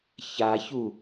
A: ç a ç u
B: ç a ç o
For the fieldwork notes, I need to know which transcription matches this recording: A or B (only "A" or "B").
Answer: A